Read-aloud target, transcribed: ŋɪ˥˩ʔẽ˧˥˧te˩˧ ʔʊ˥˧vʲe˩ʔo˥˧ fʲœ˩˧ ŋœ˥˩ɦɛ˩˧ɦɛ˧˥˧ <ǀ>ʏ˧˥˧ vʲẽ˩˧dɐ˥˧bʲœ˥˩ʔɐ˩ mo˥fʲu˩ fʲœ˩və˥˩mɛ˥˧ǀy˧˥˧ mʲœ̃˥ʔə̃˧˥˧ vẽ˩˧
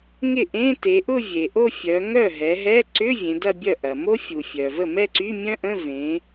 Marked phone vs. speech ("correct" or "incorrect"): correct